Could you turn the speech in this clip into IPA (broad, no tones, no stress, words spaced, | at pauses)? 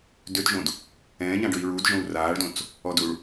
døtʒõd | ɛ̃ːɲãɖøi̯ ɹudʒõu̯ raːɭdõt͡s | ɔduɭ